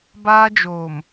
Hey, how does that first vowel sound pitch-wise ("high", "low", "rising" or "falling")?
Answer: high